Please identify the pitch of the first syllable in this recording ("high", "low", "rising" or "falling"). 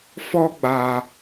high